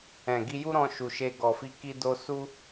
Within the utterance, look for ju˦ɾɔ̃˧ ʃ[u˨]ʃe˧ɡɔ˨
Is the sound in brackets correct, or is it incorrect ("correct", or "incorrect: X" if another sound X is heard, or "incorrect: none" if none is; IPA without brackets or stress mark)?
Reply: correct